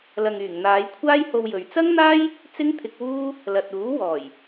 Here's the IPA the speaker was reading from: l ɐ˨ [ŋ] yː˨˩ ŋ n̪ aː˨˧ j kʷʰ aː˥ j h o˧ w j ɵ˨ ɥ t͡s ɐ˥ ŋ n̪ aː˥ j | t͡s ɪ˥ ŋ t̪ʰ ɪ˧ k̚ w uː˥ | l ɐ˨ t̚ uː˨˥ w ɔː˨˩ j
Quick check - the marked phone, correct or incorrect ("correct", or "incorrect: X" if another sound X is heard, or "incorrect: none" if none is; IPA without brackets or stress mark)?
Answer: correct